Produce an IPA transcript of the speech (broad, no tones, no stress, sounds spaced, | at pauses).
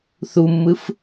θ u mː ɯ f